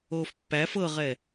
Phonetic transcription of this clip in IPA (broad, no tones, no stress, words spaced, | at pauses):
oːfpːæf ɤʁɛ